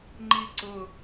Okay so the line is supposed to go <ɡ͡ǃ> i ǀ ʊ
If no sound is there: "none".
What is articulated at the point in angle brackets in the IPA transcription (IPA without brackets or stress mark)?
ŋ͡ǃ